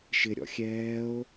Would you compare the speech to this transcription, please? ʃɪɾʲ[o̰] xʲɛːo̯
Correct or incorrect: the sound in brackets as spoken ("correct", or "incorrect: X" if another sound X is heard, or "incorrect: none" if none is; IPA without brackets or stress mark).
incorrect: ɔ̰